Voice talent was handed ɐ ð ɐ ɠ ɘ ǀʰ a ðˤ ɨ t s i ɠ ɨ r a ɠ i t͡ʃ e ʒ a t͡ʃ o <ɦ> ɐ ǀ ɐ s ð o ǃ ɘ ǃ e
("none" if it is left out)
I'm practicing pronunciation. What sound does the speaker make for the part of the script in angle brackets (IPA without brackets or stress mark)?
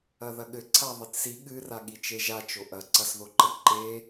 ʔ